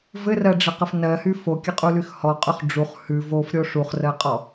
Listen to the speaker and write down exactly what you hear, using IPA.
v ɘ r ɜ ɖ͡ʐ ɘ q ɘ f n ɜ h y f o kʲ ɘ qʼ u l y x h ɔ qʼ y χ ɖ͡ʐ u χ h ʉ v o f ɾʲ o ʂ u χ r ɜ qʼ ɔ

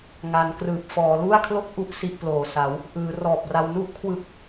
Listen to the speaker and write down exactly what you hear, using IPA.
ŋ a˩˦ n k r ɯː˨˩ p̚ f ɔː˩˦ l u˥˩ a̯ kʰ l o˥˩ k̚ ʔ u˦˥ ʔ s i˥˩ ʔ p l oː˨˩ s a˩˦ w | ʔ ɯː˩˦ r ɔː˨˩ p̚ r a˧ w n u˥˩ ʔ kʰ w ɯ˨˩ k̚

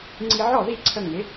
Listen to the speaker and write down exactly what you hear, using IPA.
ŋ͡ǀ i˧ ʕ ɔ˥˩ ð i˥˩ ǀʰ ə˧ ŋ ɪ˩˥

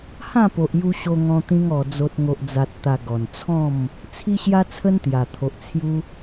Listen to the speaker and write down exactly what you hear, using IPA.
h ã˥˧ p o˨ ʔ j u˧ ɕ o˧ ŋ ɔ̃˧ t̪ ĩ˧ ŋ ɔ˨˩ d͡z o˨ t̚ ŋ o˨ ʔ d͡z a˨ t̚ t̪ a˨˩ ɡ ɔ˨˩ n t͡sʰ ɔ̃˥˧ m | t͡sʰ i˦ ɕ j a˦ t͡sʰ ə˦ n t̪ j a˨˩ t̪ʰ o˨ ʔ t͡sʰ j u˦

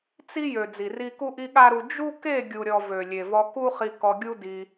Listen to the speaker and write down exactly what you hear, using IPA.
t͡s i˦ j ø˨ d͡z i˨ r i˦ k u˦ ʔ i˦ ɠ a˦ ɾ u˧ d͡ʒ u˦ k e˦˨ ɡʲ u˨ ɾʲ ɔ˨ v ø˨ lʲ e˨ v ɔ˧ k u˦ χ i˧ k ɔ˧ ɡʲ u˦ d i˧

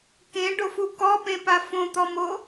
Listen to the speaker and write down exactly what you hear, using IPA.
k ẽ ɖ o f u k ɔ p ẽ p a f õ t̪ ɔ m o

